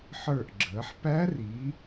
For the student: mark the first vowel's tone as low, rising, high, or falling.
falling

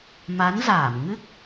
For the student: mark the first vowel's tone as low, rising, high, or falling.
rising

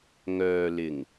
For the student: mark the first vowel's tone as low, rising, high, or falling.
low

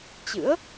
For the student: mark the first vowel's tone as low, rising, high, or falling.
rising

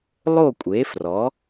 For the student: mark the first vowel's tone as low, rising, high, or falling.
falling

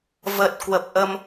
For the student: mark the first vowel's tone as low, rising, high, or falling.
low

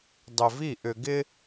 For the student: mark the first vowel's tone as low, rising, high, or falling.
low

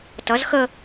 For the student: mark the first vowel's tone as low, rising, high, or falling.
rising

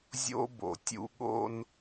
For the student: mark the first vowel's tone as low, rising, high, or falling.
high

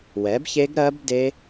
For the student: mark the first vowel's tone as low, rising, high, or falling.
rising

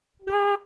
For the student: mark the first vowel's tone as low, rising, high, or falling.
high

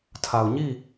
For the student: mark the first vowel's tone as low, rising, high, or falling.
low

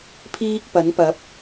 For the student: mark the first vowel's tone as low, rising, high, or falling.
high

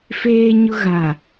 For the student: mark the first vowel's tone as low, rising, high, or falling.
high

